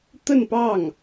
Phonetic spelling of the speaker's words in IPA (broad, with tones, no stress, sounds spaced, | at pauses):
t̪ ə˥˧ n p ɑ˥˩ ŋ